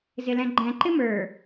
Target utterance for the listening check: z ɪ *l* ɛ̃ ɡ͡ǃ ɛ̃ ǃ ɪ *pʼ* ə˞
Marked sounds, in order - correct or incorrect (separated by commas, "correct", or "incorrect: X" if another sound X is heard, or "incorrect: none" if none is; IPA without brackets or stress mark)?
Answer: correct, incorrect: m